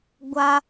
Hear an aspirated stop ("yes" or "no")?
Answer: no